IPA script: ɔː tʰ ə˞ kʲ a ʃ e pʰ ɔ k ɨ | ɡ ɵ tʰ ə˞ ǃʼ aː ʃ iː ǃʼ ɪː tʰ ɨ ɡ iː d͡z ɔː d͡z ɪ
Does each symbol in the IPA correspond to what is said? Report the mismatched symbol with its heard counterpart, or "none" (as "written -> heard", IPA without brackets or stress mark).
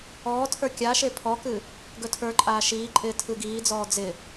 none